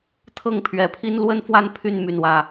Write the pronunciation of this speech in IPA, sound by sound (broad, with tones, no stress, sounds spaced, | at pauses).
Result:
t̪ʰ ɤ˥˩ ŋ pʰ ɥ ɛ˧˥ pʰ i˥ n l w ə˥ n f w a˥˧ n pʰ y˥˧ n m y˥˩ n w ä˥